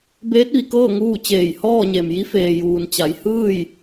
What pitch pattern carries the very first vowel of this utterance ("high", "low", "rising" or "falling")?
rising